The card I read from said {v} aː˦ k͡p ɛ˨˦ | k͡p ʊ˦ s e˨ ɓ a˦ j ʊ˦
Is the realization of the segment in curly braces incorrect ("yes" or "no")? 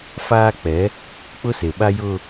yes